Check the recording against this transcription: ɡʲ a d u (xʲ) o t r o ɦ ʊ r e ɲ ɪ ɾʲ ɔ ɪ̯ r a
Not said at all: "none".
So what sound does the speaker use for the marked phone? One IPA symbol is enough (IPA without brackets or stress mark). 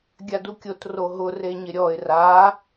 kʲ